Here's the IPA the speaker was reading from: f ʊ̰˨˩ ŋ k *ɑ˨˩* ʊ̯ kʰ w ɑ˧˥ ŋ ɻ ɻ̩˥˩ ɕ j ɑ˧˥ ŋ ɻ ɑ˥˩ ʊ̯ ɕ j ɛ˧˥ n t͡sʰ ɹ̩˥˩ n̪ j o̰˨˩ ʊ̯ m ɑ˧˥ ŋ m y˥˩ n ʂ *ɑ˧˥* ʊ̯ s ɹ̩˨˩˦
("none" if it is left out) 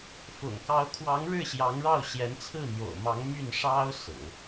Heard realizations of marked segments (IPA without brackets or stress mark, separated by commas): ɑ˧˥, ɑ˥